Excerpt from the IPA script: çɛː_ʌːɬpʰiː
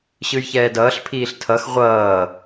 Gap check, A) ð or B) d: B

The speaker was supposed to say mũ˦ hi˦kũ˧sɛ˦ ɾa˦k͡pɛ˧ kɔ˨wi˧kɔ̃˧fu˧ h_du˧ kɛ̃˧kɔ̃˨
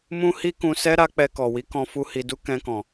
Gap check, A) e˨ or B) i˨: B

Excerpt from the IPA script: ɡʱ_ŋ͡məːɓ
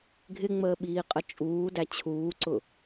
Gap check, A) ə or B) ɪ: B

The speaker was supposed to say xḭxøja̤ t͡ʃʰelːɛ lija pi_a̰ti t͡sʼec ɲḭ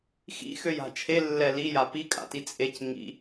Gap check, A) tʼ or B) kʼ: B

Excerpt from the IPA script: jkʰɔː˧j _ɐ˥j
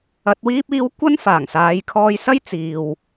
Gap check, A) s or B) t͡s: A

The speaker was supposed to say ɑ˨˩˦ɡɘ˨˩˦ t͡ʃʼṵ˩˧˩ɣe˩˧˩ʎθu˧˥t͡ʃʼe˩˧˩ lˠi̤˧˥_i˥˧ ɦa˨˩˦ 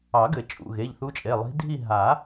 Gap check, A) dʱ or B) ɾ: A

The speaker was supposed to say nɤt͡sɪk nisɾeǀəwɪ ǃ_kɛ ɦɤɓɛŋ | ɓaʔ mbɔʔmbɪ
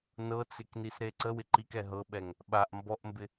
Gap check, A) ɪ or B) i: B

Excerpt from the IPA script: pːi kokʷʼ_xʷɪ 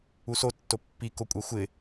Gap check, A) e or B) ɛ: B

